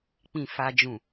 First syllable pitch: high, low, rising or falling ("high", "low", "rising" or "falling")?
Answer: low